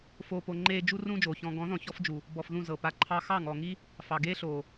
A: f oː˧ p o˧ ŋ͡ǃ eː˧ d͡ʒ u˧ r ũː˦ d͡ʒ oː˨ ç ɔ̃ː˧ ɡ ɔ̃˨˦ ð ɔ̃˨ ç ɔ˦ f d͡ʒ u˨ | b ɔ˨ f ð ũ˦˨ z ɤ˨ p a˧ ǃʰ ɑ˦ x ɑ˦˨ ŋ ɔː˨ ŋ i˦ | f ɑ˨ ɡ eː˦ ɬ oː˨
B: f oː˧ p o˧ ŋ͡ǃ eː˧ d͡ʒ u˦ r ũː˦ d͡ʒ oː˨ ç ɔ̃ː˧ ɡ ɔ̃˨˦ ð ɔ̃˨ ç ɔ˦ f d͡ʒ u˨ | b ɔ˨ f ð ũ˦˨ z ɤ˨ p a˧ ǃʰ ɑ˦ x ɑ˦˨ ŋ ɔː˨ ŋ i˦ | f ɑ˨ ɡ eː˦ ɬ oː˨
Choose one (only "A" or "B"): B